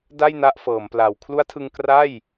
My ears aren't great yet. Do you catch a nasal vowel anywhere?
no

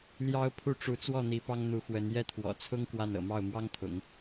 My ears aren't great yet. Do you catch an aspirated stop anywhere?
yes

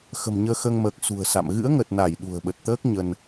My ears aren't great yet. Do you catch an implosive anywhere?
yes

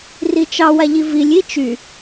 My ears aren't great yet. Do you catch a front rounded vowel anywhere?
yes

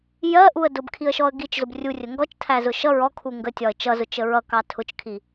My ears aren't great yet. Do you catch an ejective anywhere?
no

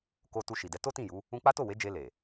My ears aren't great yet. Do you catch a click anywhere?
no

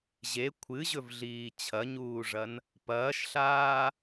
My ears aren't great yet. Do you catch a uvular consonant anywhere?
no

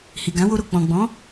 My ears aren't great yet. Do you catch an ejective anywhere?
no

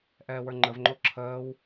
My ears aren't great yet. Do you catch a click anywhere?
yes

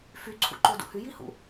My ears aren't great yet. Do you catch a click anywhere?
yes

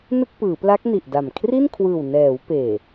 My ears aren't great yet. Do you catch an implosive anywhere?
no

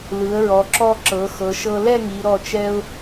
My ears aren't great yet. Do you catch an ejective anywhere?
no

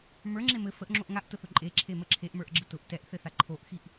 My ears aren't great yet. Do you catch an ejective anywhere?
yes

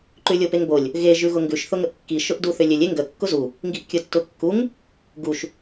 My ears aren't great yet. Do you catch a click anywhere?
yes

